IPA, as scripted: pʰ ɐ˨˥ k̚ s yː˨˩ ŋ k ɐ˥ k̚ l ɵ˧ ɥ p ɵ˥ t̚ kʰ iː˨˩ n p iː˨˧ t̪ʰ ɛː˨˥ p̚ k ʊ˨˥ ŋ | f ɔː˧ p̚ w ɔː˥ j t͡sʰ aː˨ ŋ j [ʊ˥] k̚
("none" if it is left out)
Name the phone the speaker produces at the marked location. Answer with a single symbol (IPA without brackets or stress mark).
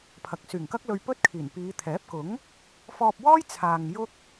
ʊ˥